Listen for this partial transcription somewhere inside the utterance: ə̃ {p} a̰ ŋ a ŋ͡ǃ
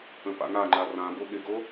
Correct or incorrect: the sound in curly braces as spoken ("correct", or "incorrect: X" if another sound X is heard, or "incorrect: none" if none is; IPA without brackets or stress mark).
correct